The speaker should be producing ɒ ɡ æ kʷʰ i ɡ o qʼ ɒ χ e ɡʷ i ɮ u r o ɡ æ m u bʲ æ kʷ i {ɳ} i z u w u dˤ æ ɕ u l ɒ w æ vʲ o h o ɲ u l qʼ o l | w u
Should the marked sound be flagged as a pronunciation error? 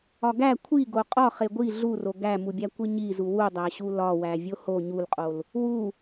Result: yes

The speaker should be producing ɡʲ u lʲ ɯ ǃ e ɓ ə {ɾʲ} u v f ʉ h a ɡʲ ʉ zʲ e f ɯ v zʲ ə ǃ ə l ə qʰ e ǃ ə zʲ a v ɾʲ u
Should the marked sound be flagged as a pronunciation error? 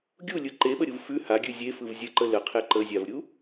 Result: no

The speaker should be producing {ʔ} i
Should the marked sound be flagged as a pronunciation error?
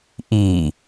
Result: no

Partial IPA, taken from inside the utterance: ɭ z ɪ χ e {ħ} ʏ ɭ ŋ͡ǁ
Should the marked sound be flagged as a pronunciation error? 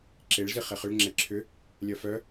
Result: yes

